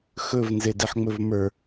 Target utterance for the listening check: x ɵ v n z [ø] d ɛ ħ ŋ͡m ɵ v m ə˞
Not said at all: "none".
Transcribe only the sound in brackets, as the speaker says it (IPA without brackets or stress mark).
e